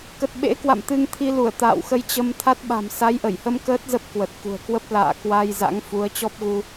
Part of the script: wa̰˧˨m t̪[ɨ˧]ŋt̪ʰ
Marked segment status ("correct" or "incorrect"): correct